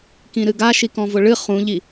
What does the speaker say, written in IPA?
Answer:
k ĩ ɾ ɨ ɡ a ʃ i k ɔ̃ v ʊ ɭ ɨ χ ũ ʎ i

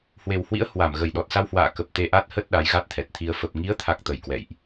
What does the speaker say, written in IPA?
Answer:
h w e˨˩ w h w ḭ˧˥ ə̯ h w a˧˩ m ɣ ə˨˩ j ɗ ɔ˨˩ t̚ s a˧ w h w a̰ː˧˨ k ə˨˩ p̚ t̪ e˧ ʔ a˦˥ t̚ h ə˦˥ t̚ ɗ a˨˦ j ɣ a˦˥ t̚ t̪ʰ ɛ˨˩ t̚ t̪ʰ i˧ ə̯ f ə˨˩ p̚ ŋ i˨˦ ə̯ t̪ʰ a˨˩ k̚ t̪ ə˨˩ j k w ɛ̰˧˨ j ʔ

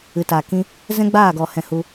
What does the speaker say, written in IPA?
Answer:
ɨ˨ t a˨ k ĩ˧ | z ɛ̃˦ ɡ͡b aː˦˨ ɡ ɔ˨ h ɛ̃˨ h u˧

